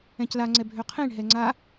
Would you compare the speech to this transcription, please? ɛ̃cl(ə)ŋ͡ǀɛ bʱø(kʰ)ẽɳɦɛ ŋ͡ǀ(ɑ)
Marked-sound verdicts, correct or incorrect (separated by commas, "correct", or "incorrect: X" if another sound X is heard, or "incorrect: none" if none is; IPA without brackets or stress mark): incorrect: a, incorrect: qʰ, incorrect: a